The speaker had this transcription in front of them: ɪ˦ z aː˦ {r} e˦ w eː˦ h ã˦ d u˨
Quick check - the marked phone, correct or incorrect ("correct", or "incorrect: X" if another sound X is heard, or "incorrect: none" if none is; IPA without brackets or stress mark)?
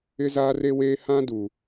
correct